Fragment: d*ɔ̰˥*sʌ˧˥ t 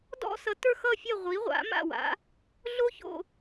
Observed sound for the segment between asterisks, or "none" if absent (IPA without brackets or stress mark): ɔ̰˥